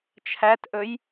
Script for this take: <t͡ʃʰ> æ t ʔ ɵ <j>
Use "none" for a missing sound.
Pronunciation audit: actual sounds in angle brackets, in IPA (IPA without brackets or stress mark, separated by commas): t͡ʃʰ, j